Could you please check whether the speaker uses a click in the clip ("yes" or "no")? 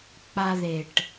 no